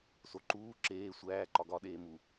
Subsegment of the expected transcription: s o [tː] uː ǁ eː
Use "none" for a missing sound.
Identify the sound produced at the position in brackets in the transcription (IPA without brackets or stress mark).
ǃ